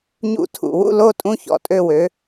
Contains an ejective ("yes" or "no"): yes